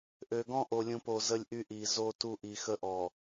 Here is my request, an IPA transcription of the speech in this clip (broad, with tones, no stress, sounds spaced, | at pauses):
ʔ ø˨ ɡ ɔ̃˦ ʔ o˨ lʲ ũ˨ p o˨ z ə˦ lʲ ʔ y˦ ʔ i˨ z o˦ t u˦ ʔ i˨ x ə˦ ʔ ɔ˨